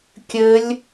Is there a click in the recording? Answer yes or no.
no